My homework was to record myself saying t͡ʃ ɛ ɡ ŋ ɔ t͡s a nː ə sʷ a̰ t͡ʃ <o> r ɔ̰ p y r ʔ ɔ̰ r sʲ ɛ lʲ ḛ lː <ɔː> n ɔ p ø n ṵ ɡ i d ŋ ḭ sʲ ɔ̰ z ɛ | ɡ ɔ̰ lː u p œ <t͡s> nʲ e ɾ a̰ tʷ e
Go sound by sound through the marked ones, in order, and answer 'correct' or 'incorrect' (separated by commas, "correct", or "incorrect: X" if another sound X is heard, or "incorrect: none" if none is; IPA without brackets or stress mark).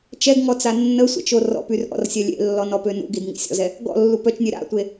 correct, incorrect: ɔ, incorrect: t͡ʃ